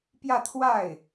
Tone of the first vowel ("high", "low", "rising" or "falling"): falling